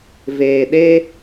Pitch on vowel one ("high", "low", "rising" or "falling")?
low